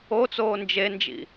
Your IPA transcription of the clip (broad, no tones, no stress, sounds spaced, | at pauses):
o t͡s oː n d͡ʒ e n d͡ʒ ḭ